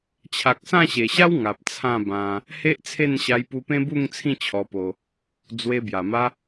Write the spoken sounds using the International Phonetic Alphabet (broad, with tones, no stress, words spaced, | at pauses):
t͡ɕʰa˨k̚sã˥˧ɕe˨˩ɕa˦w ŋa˨p̚t͡sʰã˥˧bã˧ | he˦ʔt͡sʰe˥˧nɕa˧j pu˧pẽ˦bu˥˧ŋ t͡sʰĩ˥˧ t͡ɕʰɔ˧po˧ | d͡zwe˧bja˨˩ma˦